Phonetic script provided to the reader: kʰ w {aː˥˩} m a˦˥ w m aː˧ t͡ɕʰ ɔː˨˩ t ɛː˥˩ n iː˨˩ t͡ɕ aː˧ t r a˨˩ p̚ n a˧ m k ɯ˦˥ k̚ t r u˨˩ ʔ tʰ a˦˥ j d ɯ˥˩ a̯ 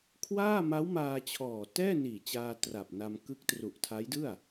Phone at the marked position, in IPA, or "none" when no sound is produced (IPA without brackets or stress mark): aː˥˩